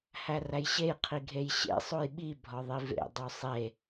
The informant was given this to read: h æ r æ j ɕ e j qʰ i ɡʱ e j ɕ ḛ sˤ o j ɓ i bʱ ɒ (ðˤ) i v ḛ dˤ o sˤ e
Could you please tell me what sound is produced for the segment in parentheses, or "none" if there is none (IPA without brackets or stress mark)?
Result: ðˤ